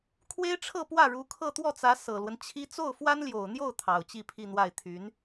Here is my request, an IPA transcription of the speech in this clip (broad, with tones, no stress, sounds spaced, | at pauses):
kʰ w e˥ ɪ̯ ʈ͡ʂʰ ɤ˥˧ p w ä˥˩ ɻ u˧˥ kʰ ɤ˥˧ t̪ w ɔ˥˩ t͡s ä˧˥ s ɤ˨˩ l w ə˦ n t͡ɕʰ i˥ t͡s o˥˩ ʊ̯ f w a˥ n l j o˨˩ ʊ̯ n̪ j o˥˩ ʊ̯ t̪ʰ ɑ˨˩ ʊ̯ t͡ɕ i˥˧ pʰ i˥˧ n̪ w a˥˩ ɪ̯ t̪ʰ y˧˥ n